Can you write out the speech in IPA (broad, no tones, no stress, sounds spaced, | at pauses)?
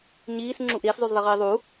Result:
ɲ iː s ŋ͡ǁ u ʔ ɾ iː s zˤ u z ðˤ i ʁ iː ðˤ u